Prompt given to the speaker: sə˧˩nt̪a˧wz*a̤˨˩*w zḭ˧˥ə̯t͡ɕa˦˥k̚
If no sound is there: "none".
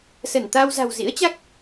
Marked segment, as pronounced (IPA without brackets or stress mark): a̤˨˩